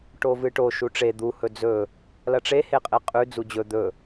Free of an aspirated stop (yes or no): yes